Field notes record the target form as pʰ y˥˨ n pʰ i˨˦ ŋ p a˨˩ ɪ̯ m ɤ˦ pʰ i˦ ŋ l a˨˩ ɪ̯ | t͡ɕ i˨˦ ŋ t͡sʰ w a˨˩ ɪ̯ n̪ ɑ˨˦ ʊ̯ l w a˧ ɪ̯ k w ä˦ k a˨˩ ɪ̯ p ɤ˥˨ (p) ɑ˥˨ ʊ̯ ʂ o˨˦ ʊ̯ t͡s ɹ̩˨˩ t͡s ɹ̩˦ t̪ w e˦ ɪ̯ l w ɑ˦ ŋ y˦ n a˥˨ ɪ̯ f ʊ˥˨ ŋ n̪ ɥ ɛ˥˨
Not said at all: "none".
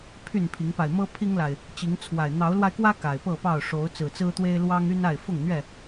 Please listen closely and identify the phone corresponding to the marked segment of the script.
p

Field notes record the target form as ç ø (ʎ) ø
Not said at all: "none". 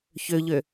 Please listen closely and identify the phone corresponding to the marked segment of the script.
ʎ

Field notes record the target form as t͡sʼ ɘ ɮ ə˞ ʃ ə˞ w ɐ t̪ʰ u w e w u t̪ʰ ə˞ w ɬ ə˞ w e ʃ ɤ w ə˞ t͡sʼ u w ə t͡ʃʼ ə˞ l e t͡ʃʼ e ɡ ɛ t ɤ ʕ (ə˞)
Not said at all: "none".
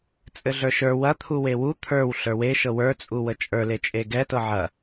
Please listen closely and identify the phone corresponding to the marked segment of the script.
ɐ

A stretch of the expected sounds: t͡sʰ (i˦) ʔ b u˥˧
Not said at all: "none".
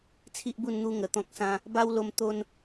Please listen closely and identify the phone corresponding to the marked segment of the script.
i˦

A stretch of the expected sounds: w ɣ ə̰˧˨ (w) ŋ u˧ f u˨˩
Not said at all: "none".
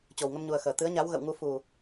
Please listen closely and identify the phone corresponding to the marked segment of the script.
w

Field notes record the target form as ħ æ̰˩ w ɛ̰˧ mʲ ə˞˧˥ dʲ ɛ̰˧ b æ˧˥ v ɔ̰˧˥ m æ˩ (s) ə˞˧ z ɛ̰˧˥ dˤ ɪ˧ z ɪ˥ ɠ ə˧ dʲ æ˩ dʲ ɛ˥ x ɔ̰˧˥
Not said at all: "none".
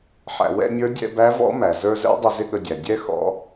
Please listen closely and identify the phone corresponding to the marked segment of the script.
z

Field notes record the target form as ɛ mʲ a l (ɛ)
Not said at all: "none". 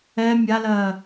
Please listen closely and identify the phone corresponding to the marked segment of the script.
ɜ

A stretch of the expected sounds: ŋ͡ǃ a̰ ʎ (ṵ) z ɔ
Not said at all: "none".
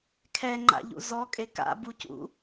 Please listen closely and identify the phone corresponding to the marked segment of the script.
ṵ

